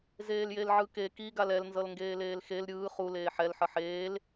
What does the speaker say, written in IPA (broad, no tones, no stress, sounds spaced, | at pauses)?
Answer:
z eː l j e l ʕ ɯ k e k i ɡ a l ɛ l n z ʌ l ŋ ɡ eː l eː l x e l ɾʲ ɯː χ u l eː ħ ɛ l ħ ʌ ħ eː l